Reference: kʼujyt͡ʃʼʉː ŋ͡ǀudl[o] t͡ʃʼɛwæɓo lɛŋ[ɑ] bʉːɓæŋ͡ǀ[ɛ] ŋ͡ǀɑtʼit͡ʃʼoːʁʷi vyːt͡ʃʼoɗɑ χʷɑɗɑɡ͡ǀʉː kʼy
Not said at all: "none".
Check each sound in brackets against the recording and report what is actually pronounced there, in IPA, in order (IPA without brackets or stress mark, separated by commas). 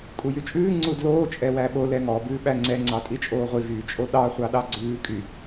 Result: oː, ɔ, ɛ